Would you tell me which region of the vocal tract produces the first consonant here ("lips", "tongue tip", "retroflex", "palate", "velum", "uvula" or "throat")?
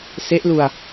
tongue tip